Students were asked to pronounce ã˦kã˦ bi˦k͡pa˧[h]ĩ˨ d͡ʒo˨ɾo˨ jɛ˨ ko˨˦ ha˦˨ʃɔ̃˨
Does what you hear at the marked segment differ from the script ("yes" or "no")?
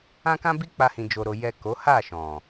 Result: no